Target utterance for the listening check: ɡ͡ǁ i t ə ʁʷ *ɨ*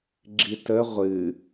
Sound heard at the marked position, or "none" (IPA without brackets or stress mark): ɨ